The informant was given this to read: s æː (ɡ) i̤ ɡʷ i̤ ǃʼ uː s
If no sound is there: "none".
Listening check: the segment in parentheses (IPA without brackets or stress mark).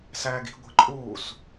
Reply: ɡ